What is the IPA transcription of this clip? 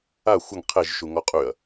a xʷəŋ qʰeʒʃu ŋɔqʼyɐ̯

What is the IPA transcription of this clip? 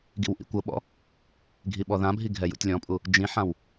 ɡḭwʔḭkʷɤɓɔ̰ | ɡʱiɓɔðãbʱi ɡʱɛjṵtʲlʲɔ̃pʼu | d͡ʒĩħãw

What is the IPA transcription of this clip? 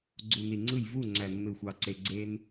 ɡ͡ǀu˨ni˨ŋ͡ǀɯ˦˨j vu˦˨ŋ͡ǀæ˨ nːɯ˨xʷɑ˨ǀe˨ ɡ͡ǀe˧n

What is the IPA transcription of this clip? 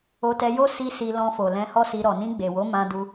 o˧tɛ˧jo˦ si˧ si˧lɔ̃˧fo˨ lɛ̃˧hɔ˦si˧ ɾɔ˨nĩ˧ɡ͡be˨wo˨˦ mã˧du˧

